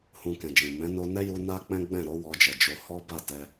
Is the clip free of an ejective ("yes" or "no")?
yes